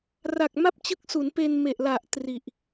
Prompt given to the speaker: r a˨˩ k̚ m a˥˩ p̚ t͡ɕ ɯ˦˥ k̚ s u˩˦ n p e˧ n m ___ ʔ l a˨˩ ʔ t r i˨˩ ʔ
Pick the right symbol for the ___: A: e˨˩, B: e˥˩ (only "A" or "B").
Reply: A